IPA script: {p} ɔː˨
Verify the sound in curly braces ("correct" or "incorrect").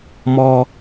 incorrect